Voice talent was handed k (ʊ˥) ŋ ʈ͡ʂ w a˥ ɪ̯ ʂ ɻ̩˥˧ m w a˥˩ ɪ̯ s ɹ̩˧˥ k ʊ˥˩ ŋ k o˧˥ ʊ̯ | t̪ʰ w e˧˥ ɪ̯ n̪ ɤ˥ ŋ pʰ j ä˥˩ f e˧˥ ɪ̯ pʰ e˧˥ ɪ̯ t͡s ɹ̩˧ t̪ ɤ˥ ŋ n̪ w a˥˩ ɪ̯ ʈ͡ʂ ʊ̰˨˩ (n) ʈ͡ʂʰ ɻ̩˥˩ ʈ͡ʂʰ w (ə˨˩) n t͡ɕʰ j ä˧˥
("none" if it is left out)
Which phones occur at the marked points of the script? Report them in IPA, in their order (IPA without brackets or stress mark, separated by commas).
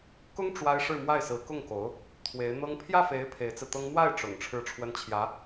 ʊ˥, ŋ, ə˥